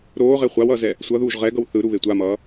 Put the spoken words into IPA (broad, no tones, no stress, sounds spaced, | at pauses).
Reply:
ɾ oː ʁ e χʷ a w ʌː z ɛ | sʷ ʌ ð uː ʒ ʁ ɛ ɡ ʌ w θ ɯ ɾ u β e tʷ a m ʌː